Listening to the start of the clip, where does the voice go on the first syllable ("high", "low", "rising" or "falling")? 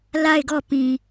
falling